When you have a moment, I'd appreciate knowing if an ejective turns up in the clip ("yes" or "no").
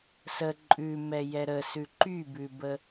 yes